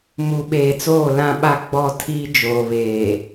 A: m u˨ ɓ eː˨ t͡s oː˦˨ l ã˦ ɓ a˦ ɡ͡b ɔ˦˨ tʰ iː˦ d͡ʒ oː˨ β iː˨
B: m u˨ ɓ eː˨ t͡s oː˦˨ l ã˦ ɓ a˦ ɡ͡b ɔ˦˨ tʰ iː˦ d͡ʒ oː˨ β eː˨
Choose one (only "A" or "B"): B